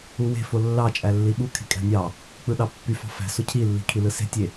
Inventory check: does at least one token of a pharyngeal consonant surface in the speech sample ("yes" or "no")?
no